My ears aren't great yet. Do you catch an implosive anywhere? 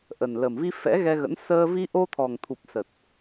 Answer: no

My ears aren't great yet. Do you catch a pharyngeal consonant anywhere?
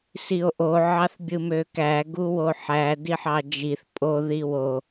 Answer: yes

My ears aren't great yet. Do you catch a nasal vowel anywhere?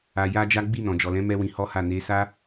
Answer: yes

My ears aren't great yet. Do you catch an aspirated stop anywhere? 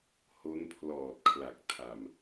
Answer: yes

